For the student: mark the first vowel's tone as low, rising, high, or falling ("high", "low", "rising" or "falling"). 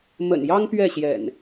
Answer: low